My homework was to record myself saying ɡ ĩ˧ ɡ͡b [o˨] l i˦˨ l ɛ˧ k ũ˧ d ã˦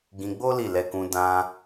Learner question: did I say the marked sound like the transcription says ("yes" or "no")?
no